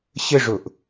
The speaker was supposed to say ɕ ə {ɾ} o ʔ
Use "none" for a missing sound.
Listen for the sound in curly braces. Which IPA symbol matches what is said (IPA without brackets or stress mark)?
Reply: ʐ